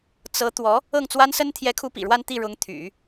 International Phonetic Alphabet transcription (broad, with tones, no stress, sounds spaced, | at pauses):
t͡s ɤ˧˥ t̪ w ɔ˧˥ | ɤ˥˩ ŋ t͡s w a˥ n s ə˥ n t̪ʰ j ɛ˧˥ kʰ u˧˥ p ḭ˨˩ ɻ w a˥˧ n t̪ i˥˩ ɻ ʊ˧˥ ŋ t̪ʰ y̰˨˩˦